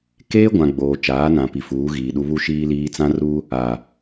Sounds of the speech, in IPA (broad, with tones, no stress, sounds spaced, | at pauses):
k eː˦ ɡʷ ã˨ ɡ͡b oː˨ t͡ʃ aː˨˦ n ã˨ p i˨ f uː˨˦ ɣ iː˨ ɗ u˦ β u˦ ʃ iː˦ l iː˦ t͡s ã˦ r u˦ | a˨